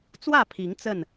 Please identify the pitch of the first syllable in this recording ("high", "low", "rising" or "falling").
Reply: falling